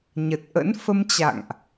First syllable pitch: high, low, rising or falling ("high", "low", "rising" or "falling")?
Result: low